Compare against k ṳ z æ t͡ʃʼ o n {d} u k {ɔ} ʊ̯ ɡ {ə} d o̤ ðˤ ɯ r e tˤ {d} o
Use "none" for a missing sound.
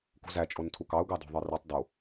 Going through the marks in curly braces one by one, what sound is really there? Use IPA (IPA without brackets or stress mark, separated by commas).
tʰ, ɑ, ɑ, d